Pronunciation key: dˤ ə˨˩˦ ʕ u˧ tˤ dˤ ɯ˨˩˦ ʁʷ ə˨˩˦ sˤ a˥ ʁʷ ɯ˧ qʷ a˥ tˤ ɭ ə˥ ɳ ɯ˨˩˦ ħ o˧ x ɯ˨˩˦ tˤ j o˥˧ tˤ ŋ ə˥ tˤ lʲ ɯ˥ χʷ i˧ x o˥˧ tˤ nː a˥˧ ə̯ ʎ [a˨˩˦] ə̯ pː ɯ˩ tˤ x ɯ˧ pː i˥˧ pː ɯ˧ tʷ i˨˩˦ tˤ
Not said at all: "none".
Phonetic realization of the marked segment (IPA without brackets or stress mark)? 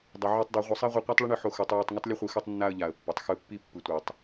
a˨˩˦